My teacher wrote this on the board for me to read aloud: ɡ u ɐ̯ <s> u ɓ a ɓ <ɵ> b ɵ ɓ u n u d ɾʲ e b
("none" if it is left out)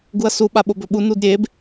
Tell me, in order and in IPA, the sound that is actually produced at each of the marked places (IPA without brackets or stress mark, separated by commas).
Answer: s, o